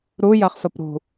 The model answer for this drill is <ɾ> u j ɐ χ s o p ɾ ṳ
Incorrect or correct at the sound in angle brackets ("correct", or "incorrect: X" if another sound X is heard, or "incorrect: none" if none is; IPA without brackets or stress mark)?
correct